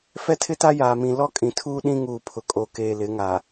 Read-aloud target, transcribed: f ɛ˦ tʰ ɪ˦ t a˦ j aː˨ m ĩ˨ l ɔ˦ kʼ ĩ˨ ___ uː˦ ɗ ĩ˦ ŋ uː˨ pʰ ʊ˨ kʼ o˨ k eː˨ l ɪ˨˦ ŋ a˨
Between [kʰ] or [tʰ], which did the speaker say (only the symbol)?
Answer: tʰ